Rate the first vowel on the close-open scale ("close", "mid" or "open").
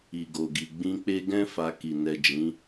close